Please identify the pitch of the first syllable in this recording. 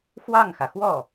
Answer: falling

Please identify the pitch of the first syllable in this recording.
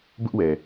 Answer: high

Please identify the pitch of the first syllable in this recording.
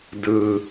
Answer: high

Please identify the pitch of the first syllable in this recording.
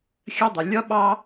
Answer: high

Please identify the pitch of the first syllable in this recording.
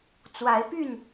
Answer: rising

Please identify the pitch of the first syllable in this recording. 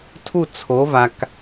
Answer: falling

